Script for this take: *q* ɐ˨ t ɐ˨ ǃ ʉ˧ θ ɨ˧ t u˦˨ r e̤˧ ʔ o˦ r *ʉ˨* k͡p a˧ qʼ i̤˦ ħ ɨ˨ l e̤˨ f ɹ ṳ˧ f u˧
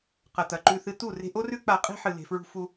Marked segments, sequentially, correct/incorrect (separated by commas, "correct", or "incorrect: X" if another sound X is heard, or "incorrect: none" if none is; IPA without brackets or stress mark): correct, incorrect: ʉ˦